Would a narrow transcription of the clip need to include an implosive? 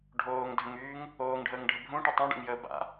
no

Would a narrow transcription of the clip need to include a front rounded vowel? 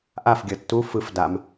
no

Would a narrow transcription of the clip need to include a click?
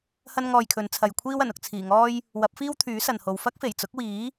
no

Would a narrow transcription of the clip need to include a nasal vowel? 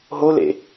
no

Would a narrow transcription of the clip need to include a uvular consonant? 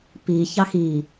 no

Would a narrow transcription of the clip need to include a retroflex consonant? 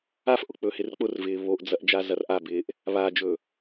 no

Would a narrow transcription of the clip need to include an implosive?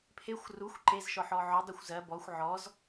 no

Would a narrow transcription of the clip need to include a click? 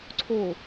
yes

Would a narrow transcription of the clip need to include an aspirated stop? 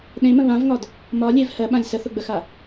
no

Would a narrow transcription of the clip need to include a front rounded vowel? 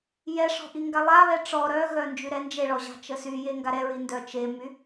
yes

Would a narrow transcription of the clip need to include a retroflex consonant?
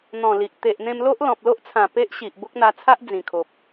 no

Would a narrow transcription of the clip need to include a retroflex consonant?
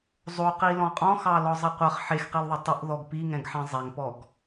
no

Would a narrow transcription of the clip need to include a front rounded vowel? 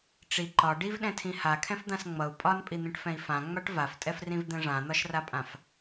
no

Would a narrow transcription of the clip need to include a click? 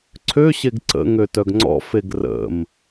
yes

